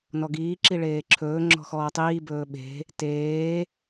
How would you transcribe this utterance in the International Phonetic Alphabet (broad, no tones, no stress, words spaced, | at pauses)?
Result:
nɔɡiː ǁiɭeːǁʰɵː ŋ͡ǁɔ̤xɔːtˤiː bɵːɓe̤ | teː